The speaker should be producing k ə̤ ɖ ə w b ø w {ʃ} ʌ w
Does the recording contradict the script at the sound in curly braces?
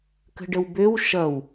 no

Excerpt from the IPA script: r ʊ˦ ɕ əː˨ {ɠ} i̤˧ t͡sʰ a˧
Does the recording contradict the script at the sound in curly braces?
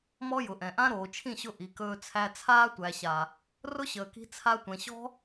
yes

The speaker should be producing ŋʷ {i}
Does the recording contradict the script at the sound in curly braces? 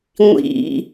yes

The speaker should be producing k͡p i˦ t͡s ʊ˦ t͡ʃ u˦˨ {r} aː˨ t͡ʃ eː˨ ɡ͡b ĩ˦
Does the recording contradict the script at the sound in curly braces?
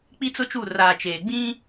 no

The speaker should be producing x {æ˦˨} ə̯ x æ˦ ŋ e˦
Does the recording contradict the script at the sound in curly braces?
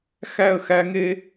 no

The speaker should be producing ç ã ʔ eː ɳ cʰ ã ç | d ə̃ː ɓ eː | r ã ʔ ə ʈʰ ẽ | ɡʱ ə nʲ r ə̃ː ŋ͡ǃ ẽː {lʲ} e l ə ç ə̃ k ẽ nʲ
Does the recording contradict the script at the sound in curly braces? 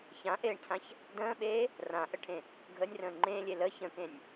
no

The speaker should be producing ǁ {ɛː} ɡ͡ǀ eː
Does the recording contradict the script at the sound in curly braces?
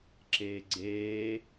yes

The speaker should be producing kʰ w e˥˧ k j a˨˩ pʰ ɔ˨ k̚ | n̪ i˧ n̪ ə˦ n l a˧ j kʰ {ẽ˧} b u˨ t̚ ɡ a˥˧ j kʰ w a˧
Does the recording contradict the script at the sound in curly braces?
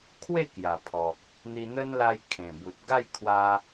yes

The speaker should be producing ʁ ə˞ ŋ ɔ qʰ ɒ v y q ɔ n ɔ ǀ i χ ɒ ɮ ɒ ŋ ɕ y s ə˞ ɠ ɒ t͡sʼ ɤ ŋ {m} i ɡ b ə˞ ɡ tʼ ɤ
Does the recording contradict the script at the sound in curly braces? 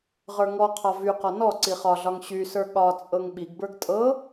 yes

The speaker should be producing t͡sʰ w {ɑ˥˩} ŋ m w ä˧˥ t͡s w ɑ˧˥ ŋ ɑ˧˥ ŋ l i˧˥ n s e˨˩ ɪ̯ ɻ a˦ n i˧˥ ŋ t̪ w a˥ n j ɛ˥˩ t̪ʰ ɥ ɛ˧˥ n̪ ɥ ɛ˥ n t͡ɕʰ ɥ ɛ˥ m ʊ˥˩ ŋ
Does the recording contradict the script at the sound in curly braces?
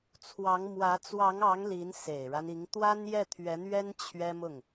yes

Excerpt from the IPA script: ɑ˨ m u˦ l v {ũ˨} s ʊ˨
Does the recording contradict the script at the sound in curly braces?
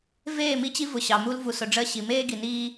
yes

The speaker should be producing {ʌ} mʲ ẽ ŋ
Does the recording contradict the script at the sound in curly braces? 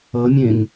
no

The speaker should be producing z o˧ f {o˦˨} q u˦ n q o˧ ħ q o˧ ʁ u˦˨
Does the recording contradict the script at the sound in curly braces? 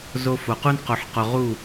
yes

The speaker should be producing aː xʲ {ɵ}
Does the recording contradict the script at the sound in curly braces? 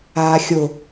yes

